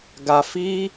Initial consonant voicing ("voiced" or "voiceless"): voiced